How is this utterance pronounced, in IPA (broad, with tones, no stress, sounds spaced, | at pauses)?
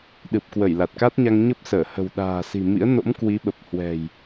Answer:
ɗ ɨ˨˩ p̚ k w ə˧˩ j l a˨˩ t̚ k a˦˥ t̚ ɲ a˧ ŋ ɲ ə˦˥ p̚ s əː˧˩ h ə̤˨˩ w ɗ a̤ː˨˩ s i̤˨˩ m ḭ˧˥ ə̯ n o̰˧˥ m k w i˨˦ ɓ ə˨˩ p̚ h w ɛ̤˨˩ j